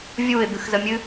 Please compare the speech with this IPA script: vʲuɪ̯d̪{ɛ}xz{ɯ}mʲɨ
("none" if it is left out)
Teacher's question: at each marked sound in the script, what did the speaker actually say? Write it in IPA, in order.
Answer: ɨ, ə

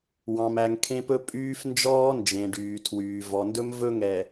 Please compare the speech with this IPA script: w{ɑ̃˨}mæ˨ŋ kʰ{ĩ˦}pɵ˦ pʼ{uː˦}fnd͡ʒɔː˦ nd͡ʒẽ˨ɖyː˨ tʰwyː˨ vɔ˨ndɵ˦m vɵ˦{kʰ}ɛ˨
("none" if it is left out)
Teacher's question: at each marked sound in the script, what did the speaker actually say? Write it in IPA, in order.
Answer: ɑ̃˨, ẽ˦, yː˦, ŋ

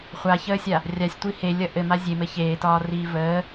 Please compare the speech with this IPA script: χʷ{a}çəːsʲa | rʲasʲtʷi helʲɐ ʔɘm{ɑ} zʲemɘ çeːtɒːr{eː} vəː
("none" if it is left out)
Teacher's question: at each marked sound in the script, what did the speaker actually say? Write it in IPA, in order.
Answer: a, a, iː

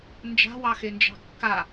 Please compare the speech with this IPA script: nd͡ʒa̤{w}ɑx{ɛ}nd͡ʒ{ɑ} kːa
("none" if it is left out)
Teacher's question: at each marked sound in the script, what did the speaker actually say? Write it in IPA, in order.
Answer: w, e, ɑ̤

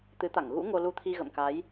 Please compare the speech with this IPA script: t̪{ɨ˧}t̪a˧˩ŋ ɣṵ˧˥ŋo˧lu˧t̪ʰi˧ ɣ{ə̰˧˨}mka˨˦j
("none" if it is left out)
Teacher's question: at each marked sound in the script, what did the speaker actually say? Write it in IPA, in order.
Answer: ɨ˨˦, ə̰˧˨

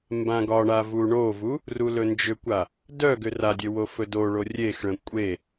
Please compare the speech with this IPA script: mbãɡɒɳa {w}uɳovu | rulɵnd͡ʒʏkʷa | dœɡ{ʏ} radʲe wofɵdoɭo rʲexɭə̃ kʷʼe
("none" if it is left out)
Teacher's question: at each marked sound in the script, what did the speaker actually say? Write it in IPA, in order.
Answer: v, ʏ

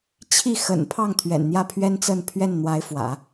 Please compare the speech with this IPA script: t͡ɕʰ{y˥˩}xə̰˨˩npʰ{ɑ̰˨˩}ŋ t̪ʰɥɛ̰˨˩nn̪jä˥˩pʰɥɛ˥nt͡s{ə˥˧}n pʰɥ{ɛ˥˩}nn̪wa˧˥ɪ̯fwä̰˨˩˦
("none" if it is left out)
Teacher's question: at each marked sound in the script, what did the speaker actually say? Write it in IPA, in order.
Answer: i˥˩, ɑ˥˩, ə˥˧, ɛ˥˩

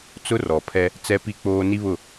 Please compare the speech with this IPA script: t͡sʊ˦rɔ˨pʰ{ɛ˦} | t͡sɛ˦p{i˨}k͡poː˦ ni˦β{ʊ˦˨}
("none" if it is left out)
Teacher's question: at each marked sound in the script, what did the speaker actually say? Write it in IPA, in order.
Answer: ɛ˦, i˦, ʊ˦˨

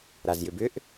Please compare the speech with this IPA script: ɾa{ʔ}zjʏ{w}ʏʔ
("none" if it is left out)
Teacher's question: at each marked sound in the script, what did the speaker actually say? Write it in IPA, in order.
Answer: none, b

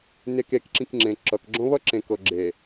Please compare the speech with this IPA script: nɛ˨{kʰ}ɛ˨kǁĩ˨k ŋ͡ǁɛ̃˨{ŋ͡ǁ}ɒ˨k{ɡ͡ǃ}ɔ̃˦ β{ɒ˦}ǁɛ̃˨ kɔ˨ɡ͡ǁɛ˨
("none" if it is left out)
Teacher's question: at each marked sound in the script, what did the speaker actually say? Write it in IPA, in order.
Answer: k, ǁ, ɡ͡ǁ, ɒ˦

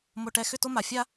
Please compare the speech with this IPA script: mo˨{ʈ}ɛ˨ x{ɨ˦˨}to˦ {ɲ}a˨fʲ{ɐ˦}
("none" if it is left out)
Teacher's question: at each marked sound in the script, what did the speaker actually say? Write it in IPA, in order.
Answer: ʈ, ʏ˦˨, m, a˦

